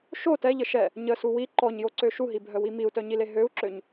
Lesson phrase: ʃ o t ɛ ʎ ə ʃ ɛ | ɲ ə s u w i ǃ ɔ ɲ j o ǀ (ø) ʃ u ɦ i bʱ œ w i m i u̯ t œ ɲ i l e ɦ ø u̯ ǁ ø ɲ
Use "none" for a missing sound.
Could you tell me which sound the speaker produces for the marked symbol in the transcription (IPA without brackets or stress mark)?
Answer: ø